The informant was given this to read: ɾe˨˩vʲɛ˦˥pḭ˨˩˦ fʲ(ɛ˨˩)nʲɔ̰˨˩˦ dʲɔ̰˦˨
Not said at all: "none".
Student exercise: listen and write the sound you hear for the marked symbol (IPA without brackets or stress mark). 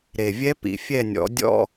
ɛ˦˨